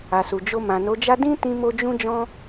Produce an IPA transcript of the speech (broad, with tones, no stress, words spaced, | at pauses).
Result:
a˨su˨d͡ʒo˧ mã˨no˨˦d͡ʒa˦ dĩ˦tĩ˧mo˧ d͡ʒũ˦d͡ʒɔ̃˦